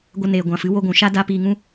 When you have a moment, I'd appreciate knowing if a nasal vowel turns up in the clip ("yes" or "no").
yes